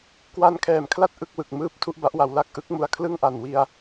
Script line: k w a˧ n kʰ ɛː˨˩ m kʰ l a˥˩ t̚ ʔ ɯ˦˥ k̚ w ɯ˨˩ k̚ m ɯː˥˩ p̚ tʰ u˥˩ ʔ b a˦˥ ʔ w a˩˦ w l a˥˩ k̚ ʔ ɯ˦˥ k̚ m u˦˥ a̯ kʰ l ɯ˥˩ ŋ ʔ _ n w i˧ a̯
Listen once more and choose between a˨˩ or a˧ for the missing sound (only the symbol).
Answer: a˨˩